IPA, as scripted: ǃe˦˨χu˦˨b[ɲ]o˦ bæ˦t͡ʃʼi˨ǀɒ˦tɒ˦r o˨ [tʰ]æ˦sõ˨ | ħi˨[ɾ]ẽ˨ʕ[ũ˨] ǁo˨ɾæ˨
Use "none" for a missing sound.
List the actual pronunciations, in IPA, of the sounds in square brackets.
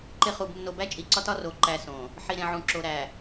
nː, ǃ, ɾ, ũ˨

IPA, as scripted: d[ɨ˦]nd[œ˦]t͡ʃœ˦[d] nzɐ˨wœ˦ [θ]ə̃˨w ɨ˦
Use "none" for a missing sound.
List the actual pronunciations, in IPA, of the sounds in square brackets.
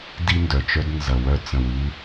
i˦, œ˨, d, t͡s

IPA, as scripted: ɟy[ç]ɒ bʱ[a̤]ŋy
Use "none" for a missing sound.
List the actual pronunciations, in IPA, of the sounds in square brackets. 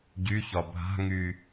ç, a̤

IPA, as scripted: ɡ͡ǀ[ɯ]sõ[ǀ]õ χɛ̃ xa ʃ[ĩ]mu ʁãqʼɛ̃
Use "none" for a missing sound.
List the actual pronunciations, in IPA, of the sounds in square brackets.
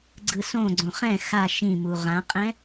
ɯ, ɡ͡ǀ, ĩ

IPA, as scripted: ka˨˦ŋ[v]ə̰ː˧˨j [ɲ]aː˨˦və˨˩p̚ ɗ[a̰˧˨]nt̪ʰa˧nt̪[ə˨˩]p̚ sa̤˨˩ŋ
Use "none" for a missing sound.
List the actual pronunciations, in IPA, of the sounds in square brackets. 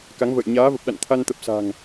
v, ɲ, a̰˧˨, ə˨˩

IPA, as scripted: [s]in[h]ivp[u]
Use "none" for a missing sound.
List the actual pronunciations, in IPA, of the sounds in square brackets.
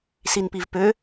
s, p, ø

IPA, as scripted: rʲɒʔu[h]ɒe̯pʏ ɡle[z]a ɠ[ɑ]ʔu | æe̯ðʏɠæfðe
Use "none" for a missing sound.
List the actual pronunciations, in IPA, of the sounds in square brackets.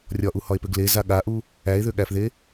h, z, a

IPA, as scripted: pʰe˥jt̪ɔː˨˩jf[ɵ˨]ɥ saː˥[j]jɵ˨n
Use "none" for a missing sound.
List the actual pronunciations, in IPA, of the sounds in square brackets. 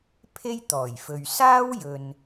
ɵ˨, w

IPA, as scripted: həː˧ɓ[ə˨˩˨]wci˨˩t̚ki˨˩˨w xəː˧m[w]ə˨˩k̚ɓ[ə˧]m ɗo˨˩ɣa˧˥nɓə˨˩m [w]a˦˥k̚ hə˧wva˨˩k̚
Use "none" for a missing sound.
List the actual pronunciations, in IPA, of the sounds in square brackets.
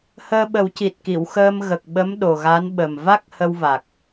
ə˨˩˦, ɣ, ə˧˥, v

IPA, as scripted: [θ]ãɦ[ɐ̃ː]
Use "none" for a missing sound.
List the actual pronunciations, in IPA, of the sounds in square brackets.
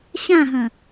ɕ, ɐ̃

